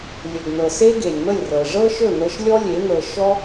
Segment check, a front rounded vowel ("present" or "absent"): absent